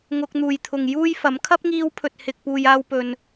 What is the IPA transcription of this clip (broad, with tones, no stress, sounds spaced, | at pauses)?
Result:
ŋ ʊ˧ k̚ n̪ uː˨ j t̪ʰ ʊ˨ ŋ j uː˥ j f ɐ˨˥ m kʰ ɐ˥ p̚ ŋ iː˧ w pʰ ɵ˨ t̚ h ɪ˨ k̚ p uː˨ j aː˧ w p ɵ˨ n